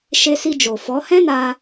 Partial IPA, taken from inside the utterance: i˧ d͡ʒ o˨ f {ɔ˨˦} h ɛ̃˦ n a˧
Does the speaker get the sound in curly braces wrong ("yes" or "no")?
no